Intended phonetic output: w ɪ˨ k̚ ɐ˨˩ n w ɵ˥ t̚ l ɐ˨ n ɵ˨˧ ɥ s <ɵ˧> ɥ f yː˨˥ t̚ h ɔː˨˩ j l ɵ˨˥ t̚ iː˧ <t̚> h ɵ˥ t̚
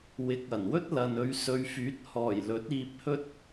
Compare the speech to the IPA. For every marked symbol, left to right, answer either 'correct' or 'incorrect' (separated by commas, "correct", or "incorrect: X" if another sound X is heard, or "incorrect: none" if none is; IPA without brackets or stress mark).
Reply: incorrect: ɵ˨˧, incorrect: p̚